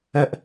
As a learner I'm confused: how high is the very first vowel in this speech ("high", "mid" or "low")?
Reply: mid